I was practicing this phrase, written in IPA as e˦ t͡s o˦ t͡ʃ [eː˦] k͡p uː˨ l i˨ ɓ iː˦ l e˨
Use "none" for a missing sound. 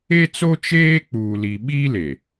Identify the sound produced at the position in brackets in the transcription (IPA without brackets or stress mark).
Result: eː˦